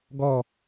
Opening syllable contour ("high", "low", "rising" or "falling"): falling